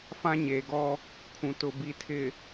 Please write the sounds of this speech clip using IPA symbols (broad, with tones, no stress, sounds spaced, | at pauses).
f ã˦ ɲ eː˨ ɡ ɔ˦ | kʰ ũ˨ t ʊ˨ b i˨ tʰ ɪ˨